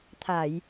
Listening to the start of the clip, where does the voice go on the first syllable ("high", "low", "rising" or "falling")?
low